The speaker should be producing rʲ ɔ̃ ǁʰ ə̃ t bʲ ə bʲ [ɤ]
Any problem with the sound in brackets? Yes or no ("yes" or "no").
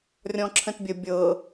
no